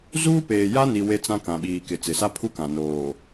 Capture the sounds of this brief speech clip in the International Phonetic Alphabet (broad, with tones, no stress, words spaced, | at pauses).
zuː˦peː˨ja˦ni˨ we˦t͡sã˦ kã˨ɓiː˨kɪ˨ t͡sɪ˨sa˦pʰu˦kã˨ noː˨